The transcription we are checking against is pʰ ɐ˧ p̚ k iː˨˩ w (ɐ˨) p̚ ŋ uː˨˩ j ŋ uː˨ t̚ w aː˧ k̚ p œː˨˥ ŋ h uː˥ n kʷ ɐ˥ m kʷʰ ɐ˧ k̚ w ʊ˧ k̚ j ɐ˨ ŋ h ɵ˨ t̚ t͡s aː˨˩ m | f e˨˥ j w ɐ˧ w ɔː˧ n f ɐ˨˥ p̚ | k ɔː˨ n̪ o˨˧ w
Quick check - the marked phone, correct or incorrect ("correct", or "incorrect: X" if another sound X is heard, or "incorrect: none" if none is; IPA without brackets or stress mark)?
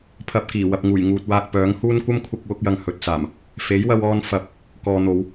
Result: correct